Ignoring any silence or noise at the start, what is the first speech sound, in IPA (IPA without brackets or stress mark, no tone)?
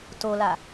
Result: t